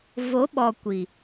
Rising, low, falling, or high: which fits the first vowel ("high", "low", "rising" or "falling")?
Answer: rising